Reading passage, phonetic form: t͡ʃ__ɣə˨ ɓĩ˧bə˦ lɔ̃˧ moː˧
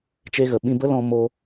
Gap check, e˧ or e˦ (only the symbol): e˧